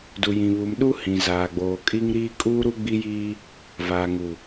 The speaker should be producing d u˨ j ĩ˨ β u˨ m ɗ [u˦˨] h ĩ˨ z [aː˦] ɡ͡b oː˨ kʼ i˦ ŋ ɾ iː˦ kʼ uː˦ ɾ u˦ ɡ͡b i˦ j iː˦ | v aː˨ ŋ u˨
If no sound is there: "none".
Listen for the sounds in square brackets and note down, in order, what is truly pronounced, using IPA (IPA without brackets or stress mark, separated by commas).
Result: u˦, aː˨